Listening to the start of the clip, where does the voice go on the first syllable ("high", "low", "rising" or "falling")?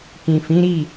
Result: low